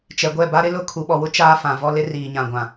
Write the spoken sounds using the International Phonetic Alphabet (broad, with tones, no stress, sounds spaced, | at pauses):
t͡ʃ ɛ˨ ɡʷ ɛ˦˨ b a˦ ɾ ɪ˦ l ʊ˦˨ kʰ u˨ ɓ ɔ˨ w ʊ˦ t͡ʃ aː˦ f ã˨ v ɔ˦ l ɪ˦ r iː˨ ɲ ã˨ ɡʷ ã˨